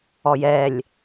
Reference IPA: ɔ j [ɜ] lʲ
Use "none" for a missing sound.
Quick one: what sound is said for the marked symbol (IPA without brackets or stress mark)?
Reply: ɛ